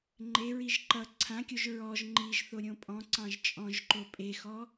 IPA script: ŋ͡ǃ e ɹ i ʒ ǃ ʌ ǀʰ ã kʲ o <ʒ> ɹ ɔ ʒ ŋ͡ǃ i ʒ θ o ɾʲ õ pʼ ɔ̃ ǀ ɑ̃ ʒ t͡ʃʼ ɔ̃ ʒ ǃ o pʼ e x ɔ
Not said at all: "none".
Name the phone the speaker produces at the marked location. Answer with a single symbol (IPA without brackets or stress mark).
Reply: ʒ